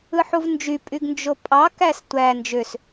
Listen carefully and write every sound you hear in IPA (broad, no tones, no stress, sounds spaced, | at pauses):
ɯ ħ u v n d͡ʒ y pʼ y ɡ n d͡ʒ o pʼ ɑ k æ s tʷ æ n d͡ʒ ø s